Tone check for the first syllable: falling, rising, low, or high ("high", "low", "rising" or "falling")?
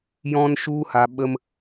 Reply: high